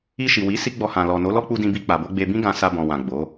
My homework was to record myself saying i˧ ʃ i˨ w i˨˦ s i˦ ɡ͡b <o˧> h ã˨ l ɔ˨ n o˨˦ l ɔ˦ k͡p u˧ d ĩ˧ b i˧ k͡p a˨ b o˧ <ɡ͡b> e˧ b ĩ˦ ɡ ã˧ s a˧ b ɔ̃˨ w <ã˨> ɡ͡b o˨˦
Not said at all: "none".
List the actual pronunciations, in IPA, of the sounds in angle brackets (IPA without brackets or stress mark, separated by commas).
ɔ˧, ɡ͡b, ã˨